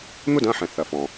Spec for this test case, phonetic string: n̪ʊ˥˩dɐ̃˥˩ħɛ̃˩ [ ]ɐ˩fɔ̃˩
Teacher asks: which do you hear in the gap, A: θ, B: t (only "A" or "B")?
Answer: A